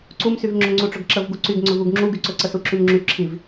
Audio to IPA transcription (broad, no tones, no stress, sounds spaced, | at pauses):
ǀ u m s y v ŋ͡ǁ ʊ ŋ͡ǀ u ʈ͡ʂ ɵ ɡ ǁ ə v ɡ u ǀ y ɡ ŋ͡ǀ ɵ v u ɡ ŋ͡ǁ u ɡ y ǀ ɵ ǀ ə s u ǁ y m ŋ͡ǁ y ǁʰ i v